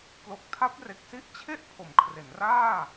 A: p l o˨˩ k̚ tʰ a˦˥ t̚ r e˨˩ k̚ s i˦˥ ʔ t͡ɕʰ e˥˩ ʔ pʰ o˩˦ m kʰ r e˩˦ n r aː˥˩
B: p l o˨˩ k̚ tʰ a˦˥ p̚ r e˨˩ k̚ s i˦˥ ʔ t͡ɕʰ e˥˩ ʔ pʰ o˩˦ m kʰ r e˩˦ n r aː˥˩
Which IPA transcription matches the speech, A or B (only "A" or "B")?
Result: B